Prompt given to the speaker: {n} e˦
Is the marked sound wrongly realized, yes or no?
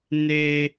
no